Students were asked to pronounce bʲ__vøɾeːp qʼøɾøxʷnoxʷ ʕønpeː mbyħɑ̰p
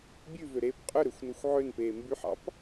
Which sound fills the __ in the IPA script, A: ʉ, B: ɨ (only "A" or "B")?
A